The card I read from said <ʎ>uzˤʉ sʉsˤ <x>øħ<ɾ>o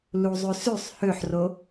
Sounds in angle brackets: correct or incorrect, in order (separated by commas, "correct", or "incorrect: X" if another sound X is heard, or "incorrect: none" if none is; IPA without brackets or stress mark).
incorrect: l, incorrect: h, incorrect: r